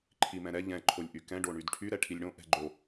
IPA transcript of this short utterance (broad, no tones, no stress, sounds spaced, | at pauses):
ǃʰ i m ɛ̃ ɾ ɛ ʎ ɛ̃ ǃʰ o lʲ ʔ y k ɛ̃ ɖ o ɳ y d ʈʰ y ɾ ɛ ʈʰ i lʲ ɽ õ ʔ ɛ̤ ɡ͡ǃ o